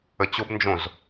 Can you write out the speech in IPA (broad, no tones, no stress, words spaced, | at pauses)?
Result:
ət͡ɕobnd͡ʒõz